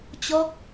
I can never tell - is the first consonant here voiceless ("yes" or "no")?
yes